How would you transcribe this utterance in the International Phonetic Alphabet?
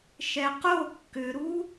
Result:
ʃ ɛ q o kː ʏ ɾ u

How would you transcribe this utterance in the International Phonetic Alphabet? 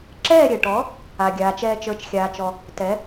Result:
ǁ ɛː˥˩ ɾʲ ɛ˩ ʈ ɔ˩˥ | a˩ ɡʲ aː˩ t͡ʃ ɛː˧ t͡ʃ ə˞˩˥ t͡ʃ xʲ aː˩ t͡ʃ ɔ˩ | t ɛ˩˥

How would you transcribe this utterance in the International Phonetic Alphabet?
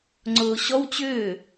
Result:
ŋ͡ǀ ʊː ɕ ɔ w t͡ɕ ʏː

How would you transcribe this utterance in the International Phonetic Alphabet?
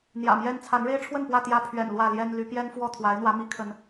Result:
n̪ j ä̰˨˩ m j ɛ˦ n t͡sʰ a˨˦ n ɻ e˦ ɪ̯ ʈ͡ʂʰ w ə˥˨ n p w ä˥˨ t̪ j ä˦ pʰ ɥ ɛ̰˨˩ n l w ä˥˨ l j ɛ˦ n l y˨˦ p j ɛ˦ n f w ɔ˥˨ t̪ʰ w a˨˦ ɪ̯ n̪ w ä˨˦ m i˨˦ kʰ ə˨˦ n

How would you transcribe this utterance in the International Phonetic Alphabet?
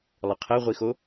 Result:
lˠ ə qʰ ɛ ʁʷ i x o

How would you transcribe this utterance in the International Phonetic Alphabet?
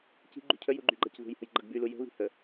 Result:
c i̤ ɡ͡ǃ ṳ cʰ ə j u ɡ͡ǃ y ɡ͡ǃ a c ð ṳ j h ə̤ j ɡ͡ǃ ʌ ɡ b y l u j ə̤ β i̤ h ə

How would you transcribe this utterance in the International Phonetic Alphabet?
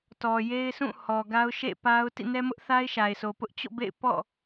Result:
t ɔ˨ j e˦ ɪ̯ sʰ ũ˦˨ h ɔ˨ ɡ a˦ ʊ̯ ʃ ḛ˦˨ p a˦ ʊ̯ t ḭ˦˨ n ɛ˦ m ʊ˦ ʔ θ a˦ ɪ̯ ʃ a˨ ɪ̯ sʰ o˨ p ʊ˦ ʔ t͡ɕ o̰˦˨ b ḛ˦˨ ɪ̯ p ɔ̰˦˨

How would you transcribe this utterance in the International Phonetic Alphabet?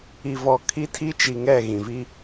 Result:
i˨ v ɔ˨ kʰ i˦ tʰ i˦ t͡ʃ i˨ ŋ ɛ˦˨ ɣ ĩ˨ v i˦

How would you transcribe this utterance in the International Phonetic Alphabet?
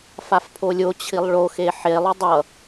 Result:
f a f pʰ o lʲ o t͡ɕʰ i lˠ ɭ o x e ħ e lˠ ʊ dˤ ʌ

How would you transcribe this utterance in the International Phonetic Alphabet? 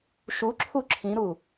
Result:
ʃ u ǁʰ u ǁʰ ĩ ɾ u

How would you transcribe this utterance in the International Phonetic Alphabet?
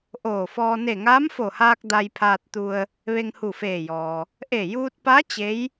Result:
ʔ oː˧˩ f ɔː˧ n e˧˩ ŋ aː˧˥ m f o˧˩ h aː˧ k̚ d a˧ j pʰ aː˧ t̚ t̪ u˧ ə̯ | ʋ e˧ ŋ h u˧˩ f eː˧˩ j ɔː˩ | ʔ e˧˩ j uː˧ t̚ p a˧˥ t͡ɕ e˧˥ j

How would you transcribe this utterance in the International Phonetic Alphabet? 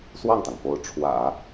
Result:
s w ɑ˥˩ ŋ t̪ ɑ˩ ŋ f o˧˥ ʊ̯ ʈ͡ʂʰ w ä̰˨˩˦

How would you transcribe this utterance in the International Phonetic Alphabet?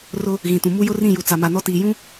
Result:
r ʊ˦ | ɣ ĩ˨ t ũ˨ m u˦ j ʊ˦ r ĩ˦˨ j u˨ t͡s a˨ m a˨ n ɔ˦ t iː˨ j ũ˦

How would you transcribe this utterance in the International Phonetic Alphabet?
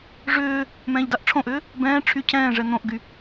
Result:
ʐ ʏː | m ɛ̃ː ʎ d a ʔ ʈ͡ʂʰ õ ʔ ʏː | b ɛ̃ː ʈ͡ʂʰ y cʰ ɛ̃ː ʐ ɛ n̪ õ ʔ ɡ y

